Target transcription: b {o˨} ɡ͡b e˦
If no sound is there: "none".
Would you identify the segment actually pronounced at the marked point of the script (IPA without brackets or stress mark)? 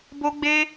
o˦